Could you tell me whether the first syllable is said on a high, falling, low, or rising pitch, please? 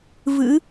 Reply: rising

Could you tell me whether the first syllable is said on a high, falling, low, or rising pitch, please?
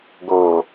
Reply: low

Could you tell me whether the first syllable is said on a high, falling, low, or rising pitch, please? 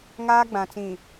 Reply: high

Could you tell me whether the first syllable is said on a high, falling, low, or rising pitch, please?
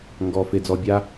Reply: low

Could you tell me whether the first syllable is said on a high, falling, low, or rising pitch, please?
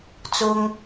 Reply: high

